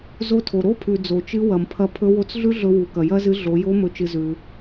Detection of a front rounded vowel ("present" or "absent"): absent